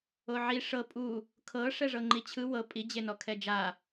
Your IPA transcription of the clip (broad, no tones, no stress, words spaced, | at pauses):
oʕi ʂɤ pʼu | kʰɤ ʂɛʐɤŋ͡ǃit͡ɕʰɯ wɤ pʼi d͡ʑenɔkʰɛd͡ʒa